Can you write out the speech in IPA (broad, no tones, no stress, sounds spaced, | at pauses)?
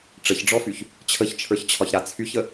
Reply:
ʈ͡ʂ ə ç ɖ͡ʐ ɔ f y ç | t͡ɕʰ ə ç t͡ʃʰ ə˞ ç t͡ɕʰ ɒ ç ɾ a t͡sʰ y ç ə